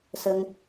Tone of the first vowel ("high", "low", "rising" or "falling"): high